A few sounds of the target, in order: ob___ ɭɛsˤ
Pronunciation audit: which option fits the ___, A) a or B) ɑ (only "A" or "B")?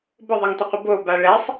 A